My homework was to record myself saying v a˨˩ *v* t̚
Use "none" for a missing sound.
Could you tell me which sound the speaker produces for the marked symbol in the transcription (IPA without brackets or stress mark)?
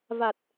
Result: none